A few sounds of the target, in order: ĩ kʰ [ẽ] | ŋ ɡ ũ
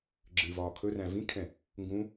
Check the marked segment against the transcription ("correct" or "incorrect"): incorrect